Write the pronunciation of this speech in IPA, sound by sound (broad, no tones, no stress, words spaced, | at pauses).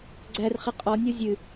ɡ͡ǀærχi qʼɔnʲɔ zʲɨ